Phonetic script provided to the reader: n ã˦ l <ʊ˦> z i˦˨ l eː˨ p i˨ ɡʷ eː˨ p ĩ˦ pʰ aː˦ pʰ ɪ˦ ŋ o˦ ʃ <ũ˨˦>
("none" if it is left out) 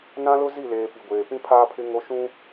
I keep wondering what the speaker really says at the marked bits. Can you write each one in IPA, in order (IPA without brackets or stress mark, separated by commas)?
ʊ˦, ũ˦